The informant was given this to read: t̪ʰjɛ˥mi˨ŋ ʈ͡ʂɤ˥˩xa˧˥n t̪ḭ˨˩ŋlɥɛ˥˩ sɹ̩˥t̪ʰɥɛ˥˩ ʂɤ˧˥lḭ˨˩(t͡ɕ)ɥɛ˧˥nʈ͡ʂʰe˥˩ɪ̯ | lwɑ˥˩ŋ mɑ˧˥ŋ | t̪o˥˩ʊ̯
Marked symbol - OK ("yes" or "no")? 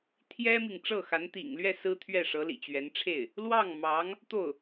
yes